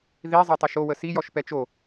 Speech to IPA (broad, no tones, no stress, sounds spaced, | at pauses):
ð i zˤ ɛ tˤ ɛ ʃ o w ə s i j ɔ ʃ p ɛ t͡ʃ o